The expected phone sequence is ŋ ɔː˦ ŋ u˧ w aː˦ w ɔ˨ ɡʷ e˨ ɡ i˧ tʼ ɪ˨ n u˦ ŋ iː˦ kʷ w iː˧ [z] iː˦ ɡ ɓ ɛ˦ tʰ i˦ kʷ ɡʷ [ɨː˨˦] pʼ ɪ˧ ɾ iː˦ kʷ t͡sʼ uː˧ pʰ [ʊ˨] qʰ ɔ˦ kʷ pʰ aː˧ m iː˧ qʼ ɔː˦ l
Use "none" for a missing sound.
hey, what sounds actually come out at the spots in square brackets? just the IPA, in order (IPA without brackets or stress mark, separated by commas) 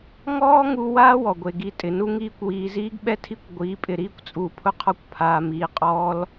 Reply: z, iː˨˦, ʊ˦